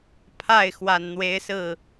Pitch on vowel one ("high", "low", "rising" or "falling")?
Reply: falling